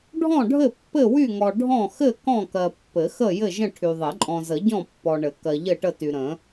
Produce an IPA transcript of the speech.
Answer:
ɖʱɔ̃˥˨ɖʱɘ˥˨ pːɘ˥˨wy˥˨ŋɔ˨ ɖʱɔ̃˥˨ xɘ˥˨ kɔ̃˥˨kɜ˨pːɘ˨˩˦xə˥˨ jɘ˥˨ʒə̃˥˨ ʈʰy˨ ðˤɘ˨˩˦ǃʼɔ̃˨zə˨˩˦ɟɔ̃˥˨ pːɔ˨ɳɘ˨˩˦ kɜ˨ʎɘ˥˨ʈə˥˨ty˨ ɾə̃˨˩˦

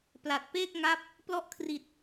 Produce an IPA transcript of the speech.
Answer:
pla˨˩t̚peː˥˩k̚ŋa˦˥p̚ | plɔ˦˥ʔkʰri˨˩t̚

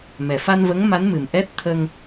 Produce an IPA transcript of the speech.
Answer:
mɛ˨˩fa˧nvə˧˥ŋ ma˧˥nmɨ˨˩m ʔɛ˦˥t̚ t̪ʰə˧ŋ

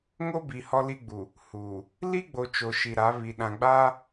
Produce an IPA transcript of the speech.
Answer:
ŋo˦bi˨ hɔ˦li˦ ɡ͡bu˨ | huː˨ | li˦ɡ͡bo˨ t͡ʃo˨ʃi˨ɾa˨˦βi˨ ɗã˨ɡ͡baː˦

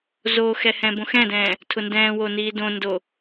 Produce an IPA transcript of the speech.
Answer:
zoxɛhɛ̃ bõxɛ̃dɛ̃ː | tʰʊndɛ̃ːwo niːdõndo

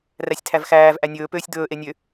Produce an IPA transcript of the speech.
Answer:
ræsʲtʰævxæːv ʔænʲɵː pøːsʲd̪ɵː ʔenʲø

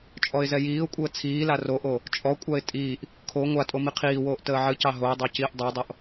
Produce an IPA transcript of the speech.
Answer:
t͡ʃʼɔɪ̯zɛjiːʊ̯kʷʼəː t͡sʰiːla roʔo | t͡ʃʼɔkʷʼaɪ̯ tʼiːʔ | kʰo ŋʷa tʼomiqʰiːwoːʔ təːʕɨcɑ ɦoɪ̯dˤɑ ciːʔdˤɑdˤoʔ

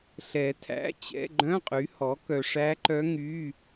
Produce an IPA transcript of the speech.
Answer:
ɬɛ˨˩˦ tʰæ̰˧˥˧t͡ɕɛ̰˧˥˧ ɡ͡ǃœ̃˧˥˧qʼy˩˥hɔ˩˥ kœ˨ʂæ˧˥ǃœ˧˥ ŋy˧˥˧

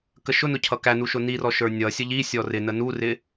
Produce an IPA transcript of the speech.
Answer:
kəʃʊnʊ cʰʌkænu ʃʊnirɔ ʃə˞nʲʌsʲə ʎi sʲɔrɪnə nurɪ

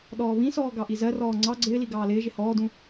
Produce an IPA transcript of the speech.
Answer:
ɗɔːβĩsɔː ɡɑʔizɜrɔː ŋ͡ǀɑ ɡ͡ǀɪːli ɡɑːlɪːʒɪ hɔːdũ

